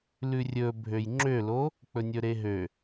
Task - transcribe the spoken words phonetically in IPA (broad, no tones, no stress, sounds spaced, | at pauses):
l ʉ rʲ ɵ bʱ ø j ŋ͡ǁ ø l o | k͡p ɵ nʲ ɵ ɾ e ɦ ø